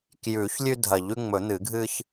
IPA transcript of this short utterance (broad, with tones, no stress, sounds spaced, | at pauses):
k j ʉ˨˩˦ ç lʲ ʉ˦ dʱ ɐ˨˩˦ ʎ ʉ˦ ŋ͡m ɵ˨˩˦ n̪ ɨ˨˩˦ ɡʱ ɨ˦ ç